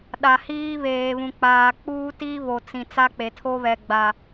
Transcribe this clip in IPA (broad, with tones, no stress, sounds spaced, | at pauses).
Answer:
ɗ a˨ h iː˦ β eː˨ β ũ˨ k͡p aː˨ k͡p uː˦ t i˦ β o˨ t͡s ĩ˨ t͡s a˦ k͡p e˨ tʰ o˦ β ɛ˨ ɡ͡b a˨